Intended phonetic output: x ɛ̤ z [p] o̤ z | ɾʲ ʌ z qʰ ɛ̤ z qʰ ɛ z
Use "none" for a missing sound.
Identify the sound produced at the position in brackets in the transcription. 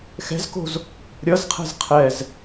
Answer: k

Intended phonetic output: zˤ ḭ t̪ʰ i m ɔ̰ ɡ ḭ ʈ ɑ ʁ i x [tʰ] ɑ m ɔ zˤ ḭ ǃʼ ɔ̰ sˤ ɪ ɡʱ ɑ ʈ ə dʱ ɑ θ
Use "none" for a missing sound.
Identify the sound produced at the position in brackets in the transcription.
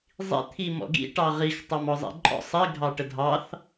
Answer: tˤ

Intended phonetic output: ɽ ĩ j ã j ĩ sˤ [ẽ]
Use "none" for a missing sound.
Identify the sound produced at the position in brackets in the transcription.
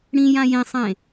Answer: ẽ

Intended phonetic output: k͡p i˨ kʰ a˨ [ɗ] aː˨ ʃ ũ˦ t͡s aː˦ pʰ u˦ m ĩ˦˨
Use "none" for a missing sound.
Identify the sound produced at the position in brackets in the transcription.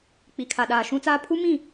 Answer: ɗ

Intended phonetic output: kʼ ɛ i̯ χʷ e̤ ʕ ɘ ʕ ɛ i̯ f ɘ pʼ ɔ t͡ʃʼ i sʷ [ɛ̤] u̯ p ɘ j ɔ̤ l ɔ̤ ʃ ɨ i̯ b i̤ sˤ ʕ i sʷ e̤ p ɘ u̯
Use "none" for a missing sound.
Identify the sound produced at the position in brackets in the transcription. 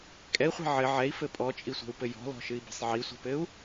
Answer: e̤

